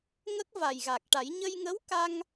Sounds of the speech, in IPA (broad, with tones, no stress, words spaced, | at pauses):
ŋə˦˥k̚ va˨˩jɣa˨˩k̚ʈa˨˩˦j ɲə˧jŋə˧˥wka˧ŋ